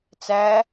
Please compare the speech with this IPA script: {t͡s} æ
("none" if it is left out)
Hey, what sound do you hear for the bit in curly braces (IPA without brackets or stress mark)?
t͡s